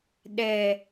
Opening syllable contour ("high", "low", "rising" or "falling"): low